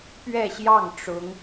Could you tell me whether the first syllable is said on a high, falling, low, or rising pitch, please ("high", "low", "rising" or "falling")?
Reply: falling